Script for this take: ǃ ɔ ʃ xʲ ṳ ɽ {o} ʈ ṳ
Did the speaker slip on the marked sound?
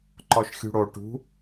no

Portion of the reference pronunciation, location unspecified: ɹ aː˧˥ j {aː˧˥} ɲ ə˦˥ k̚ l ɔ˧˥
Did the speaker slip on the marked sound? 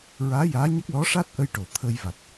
no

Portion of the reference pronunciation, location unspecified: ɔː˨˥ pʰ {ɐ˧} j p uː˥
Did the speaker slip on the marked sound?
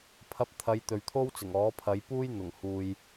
yes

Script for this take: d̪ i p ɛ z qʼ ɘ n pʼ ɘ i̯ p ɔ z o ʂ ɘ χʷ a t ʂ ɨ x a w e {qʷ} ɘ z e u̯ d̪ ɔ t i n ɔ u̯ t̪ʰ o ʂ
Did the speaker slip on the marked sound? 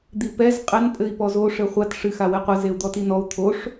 no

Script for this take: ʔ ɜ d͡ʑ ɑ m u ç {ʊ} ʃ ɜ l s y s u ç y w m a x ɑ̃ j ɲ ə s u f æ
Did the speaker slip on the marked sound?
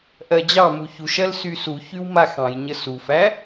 yes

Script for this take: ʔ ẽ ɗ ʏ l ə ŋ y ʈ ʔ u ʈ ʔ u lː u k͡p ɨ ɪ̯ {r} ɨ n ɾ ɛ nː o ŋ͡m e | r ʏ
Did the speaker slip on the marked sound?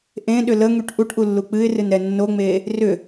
no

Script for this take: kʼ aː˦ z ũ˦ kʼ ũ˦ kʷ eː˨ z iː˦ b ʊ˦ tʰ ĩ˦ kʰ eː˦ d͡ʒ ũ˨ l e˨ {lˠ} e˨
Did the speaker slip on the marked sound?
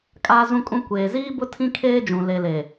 yes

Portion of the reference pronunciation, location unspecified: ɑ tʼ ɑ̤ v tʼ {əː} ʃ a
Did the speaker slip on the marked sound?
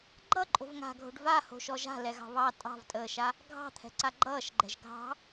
no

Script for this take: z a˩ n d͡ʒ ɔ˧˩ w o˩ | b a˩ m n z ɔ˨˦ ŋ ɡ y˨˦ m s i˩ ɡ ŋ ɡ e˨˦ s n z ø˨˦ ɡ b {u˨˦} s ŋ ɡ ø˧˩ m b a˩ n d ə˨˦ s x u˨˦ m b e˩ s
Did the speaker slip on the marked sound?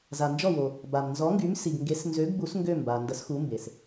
no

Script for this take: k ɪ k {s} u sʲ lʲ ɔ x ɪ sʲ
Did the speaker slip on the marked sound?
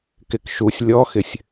yes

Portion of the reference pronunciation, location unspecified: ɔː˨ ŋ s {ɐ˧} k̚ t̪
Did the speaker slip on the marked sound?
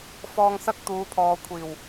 no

